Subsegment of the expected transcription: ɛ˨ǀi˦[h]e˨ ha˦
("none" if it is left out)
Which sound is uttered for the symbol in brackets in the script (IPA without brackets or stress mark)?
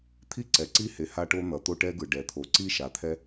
h